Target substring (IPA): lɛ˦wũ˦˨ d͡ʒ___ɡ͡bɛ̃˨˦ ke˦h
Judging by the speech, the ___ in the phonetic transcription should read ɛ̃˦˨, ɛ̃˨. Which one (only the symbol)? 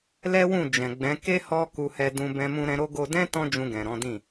ɛ̃˨